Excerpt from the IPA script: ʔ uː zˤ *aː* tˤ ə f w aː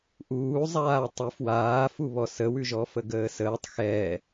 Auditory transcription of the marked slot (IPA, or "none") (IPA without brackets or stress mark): aː